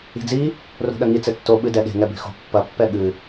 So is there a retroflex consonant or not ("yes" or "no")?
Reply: no